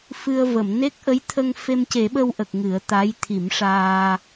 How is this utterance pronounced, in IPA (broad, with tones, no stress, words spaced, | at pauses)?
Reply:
fɨ˧ə̯və˨˩˨m ne˦˥k̚ʔə˧˥jt̪ʰə˧ŋ fe˧mce˨˩˦ɓə˧wʔə˨˩k̚ ŋɨ˨˩˦ə̯t̪a˧˥j t̪ʰi˨˩˦mʂaː˧